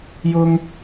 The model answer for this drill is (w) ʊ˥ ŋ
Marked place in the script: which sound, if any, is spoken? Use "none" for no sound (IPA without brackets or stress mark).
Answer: j